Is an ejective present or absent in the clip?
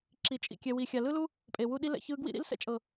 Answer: present